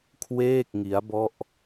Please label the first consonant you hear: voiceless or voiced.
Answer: voiceless